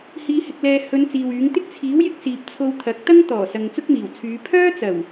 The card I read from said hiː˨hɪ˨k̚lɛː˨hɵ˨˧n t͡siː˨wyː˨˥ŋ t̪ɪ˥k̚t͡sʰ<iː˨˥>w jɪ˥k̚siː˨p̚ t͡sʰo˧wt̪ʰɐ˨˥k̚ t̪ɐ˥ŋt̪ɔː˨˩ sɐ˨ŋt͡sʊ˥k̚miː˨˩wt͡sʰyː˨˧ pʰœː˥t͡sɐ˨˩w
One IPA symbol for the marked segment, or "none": iː˨˥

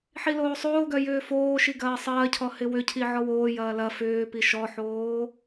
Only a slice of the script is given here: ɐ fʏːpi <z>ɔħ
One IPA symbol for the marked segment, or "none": ʃ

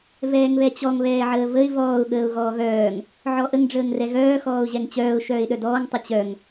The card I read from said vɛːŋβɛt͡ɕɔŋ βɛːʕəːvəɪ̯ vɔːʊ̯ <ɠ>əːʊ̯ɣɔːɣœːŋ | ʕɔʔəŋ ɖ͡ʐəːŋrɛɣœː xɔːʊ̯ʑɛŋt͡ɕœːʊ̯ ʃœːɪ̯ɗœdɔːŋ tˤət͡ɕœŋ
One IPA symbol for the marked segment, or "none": ɠ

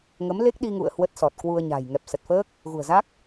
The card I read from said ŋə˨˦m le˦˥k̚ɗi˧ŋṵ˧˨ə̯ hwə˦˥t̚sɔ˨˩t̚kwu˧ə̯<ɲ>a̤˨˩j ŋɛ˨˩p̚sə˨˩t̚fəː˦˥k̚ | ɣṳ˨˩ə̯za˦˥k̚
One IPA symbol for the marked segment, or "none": ɲ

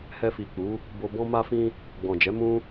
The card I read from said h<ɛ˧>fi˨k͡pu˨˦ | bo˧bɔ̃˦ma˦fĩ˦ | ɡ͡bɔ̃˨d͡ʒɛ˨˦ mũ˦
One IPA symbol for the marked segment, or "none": ɛ˧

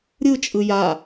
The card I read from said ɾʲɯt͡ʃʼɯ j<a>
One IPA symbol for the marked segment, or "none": a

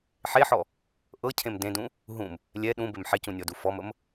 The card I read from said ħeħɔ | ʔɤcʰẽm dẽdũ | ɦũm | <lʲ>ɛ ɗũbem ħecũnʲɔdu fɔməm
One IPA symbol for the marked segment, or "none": lʲ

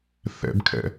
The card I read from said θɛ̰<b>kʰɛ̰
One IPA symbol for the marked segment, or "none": b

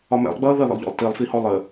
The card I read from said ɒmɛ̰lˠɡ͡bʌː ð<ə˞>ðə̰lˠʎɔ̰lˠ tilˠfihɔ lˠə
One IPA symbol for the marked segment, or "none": ʌ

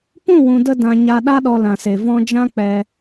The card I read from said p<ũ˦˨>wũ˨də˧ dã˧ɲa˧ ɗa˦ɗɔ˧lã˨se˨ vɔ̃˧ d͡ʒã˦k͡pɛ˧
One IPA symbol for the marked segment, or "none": ũ˦˨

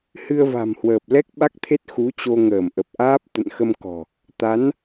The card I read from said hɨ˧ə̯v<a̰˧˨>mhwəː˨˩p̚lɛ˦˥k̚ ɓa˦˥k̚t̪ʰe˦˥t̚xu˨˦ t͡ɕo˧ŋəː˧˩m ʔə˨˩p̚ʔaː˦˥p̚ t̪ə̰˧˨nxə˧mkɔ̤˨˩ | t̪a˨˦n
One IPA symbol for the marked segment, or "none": a̤˨˩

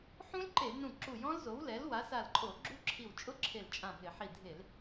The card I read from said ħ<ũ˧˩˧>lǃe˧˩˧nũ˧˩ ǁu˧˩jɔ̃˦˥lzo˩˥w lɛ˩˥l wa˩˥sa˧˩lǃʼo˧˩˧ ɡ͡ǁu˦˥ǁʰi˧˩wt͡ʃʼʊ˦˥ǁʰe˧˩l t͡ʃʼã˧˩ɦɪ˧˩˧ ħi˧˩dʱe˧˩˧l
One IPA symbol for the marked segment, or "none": ũ˦˥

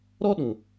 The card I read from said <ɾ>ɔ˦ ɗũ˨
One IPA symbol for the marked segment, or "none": ɾ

